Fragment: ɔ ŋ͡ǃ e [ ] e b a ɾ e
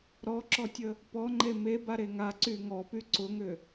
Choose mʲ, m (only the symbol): m